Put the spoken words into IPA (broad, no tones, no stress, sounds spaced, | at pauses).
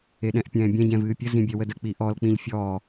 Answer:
e ɗ ɛ̃ ʔ pʲ ɛ̃ː bʲ ɛ̃ ɟ ɛ̃ v ɨː pʲ ə z ĩ bʲ ɛ w ə d ə k͡p i ʔ ɔ l k͡p ĩ ʎ fʲ ɔ